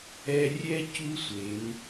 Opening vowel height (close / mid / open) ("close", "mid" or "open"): mid